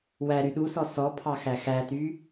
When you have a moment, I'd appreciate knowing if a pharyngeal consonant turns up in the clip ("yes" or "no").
no